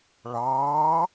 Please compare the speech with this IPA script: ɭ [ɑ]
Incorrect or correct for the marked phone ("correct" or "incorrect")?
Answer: incorrect